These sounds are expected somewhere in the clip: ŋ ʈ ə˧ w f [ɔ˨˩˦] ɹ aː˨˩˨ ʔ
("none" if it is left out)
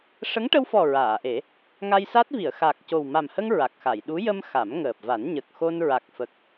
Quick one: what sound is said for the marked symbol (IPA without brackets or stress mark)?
ɔ˨˩